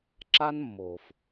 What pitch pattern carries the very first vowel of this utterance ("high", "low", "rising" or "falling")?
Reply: high